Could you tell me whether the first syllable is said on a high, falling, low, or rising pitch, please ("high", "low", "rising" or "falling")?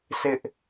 high